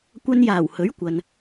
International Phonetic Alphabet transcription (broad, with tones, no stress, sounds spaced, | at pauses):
kʷ ɐ˧ n j aː˨˩ w h ɵ˨˥ ɥ kʷ ɐ˨ n